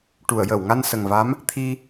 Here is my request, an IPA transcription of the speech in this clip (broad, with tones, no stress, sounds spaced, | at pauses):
ʈ u˨˩˨ ə̯ j əː˨˩˨ w ŋ a˧ n s ə˨˩ ŋ v a˧˥ m | t̪ʰ i˧